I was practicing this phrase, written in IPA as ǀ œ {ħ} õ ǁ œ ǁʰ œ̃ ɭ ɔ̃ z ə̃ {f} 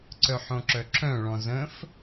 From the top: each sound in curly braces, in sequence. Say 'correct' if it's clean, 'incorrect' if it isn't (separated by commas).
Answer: correct, correct